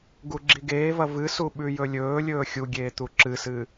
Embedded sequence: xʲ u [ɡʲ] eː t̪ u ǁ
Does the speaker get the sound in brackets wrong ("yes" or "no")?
no